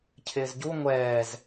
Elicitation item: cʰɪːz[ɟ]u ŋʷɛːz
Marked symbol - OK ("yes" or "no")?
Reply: yes